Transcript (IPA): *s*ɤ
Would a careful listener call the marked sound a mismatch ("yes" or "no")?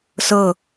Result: no